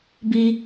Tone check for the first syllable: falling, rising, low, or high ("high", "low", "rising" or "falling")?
high